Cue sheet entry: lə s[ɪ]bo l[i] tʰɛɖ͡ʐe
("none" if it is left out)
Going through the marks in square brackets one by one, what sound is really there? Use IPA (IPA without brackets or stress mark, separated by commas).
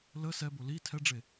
ɛ, i